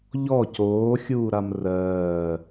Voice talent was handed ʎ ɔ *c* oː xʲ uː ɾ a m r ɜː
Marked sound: correct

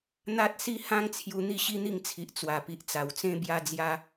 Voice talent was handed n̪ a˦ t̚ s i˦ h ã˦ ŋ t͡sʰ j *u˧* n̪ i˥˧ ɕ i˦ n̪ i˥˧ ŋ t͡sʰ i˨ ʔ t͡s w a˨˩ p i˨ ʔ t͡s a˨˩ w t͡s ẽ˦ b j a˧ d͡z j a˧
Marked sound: correct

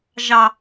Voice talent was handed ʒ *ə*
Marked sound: incorrect: ɑ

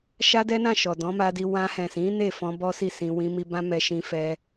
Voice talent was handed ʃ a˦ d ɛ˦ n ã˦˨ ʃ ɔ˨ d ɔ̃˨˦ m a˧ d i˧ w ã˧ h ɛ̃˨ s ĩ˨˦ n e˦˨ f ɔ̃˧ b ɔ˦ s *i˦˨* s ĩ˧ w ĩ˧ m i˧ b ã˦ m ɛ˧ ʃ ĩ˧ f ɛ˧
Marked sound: correct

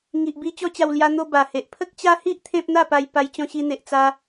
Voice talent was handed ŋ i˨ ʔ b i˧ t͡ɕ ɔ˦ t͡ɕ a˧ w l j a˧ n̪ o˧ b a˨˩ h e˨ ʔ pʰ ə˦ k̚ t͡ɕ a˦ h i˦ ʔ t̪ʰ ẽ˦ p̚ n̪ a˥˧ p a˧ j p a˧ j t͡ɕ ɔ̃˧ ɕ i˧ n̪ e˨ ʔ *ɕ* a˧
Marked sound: incorrect: t͡s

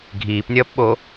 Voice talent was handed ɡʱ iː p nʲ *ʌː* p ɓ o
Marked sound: correct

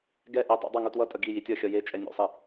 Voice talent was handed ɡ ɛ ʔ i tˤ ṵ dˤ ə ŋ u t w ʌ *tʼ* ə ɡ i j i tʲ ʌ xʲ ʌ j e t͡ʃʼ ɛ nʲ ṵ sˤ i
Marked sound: correct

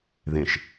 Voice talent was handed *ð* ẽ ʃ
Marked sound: correct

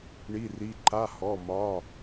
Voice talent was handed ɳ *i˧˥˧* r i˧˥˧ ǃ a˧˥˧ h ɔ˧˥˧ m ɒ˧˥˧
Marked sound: correct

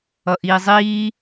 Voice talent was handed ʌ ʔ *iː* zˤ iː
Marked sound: correct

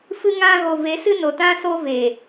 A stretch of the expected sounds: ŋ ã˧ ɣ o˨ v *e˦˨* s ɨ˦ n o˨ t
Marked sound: incorrect: e˨˦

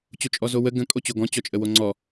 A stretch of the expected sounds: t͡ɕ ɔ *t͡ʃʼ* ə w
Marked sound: correct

